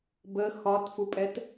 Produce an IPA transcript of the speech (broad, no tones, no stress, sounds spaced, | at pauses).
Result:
b ə x ɒ t f u pʼ ɛ t